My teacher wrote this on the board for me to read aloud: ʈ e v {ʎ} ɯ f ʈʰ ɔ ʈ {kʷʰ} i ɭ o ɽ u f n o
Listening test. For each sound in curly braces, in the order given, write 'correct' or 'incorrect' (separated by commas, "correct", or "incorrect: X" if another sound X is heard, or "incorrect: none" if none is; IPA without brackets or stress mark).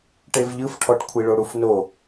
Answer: correct, correct